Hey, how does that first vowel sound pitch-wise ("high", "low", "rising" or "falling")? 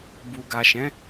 low